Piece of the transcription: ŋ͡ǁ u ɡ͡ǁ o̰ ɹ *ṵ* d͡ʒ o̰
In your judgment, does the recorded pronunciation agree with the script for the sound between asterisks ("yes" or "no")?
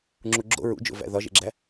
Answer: yes